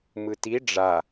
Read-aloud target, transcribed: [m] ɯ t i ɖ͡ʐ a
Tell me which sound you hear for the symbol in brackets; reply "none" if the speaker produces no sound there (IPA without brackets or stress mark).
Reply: m